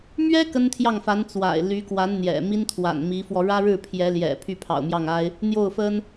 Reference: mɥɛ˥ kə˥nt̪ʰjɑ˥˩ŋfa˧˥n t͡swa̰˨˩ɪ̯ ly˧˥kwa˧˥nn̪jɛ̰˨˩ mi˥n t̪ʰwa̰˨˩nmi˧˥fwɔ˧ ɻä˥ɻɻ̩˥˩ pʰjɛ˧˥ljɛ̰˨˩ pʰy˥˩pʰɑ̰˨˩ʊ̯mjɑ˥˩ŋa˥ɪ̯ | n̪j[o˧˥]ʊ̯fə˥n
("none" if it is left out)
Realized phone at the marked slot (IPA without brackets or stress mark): o˥˩